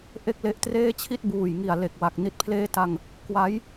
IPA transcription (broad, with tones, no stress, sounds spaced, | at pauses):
ʔ e˥˩ k̚ l e˦˥ ʔ t r eː˥˩ t͡ɕʰ i˥˩ t̚ b uː˨˩ j ŋ i˨˩ a̯ l e˨˩ k̚ w a˨˩ k̚ n i˨˩ t̚ pʰ l eː˦˥ t a˧ ŋ | k w a˦˥ j